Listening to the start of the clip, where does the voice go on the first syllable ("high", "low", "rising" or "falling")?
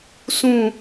falling